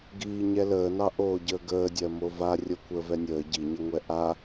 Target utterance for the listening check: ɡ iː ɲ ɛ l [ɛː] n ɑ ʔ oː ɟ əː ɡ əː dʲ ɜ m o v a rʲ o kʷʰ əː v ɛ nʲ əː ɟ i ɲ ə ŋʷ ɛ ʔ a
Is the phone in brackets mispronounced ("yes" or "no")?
yes